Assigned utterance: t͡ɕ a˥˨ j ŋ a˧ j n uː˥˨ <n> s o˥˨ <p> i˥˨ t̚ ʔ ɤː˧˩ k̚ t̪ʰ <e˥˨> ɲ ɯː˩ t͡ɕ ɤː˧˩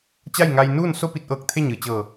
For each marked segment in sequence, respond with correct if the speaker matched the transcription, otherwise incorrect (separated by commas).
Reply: correct, correct, correct